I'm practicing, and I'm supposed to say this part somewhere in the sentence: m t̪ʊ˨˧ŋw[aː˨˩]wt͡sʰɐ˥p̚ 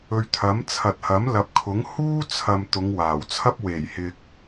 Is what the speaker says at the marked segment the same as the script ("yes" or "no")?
yes